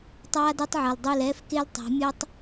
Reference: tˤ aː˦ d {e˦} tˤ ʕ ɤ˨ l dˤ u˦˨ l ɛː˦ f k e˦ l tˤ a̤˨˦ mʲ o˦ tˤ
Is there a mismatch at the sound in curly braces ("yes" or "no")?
no